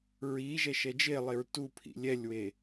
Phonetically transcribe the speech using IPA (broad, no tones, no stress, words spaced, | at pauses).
ɹiːʒɛ ʃɛd͡ʒelˠeɹ tupʰḭ lʲɛlʲwe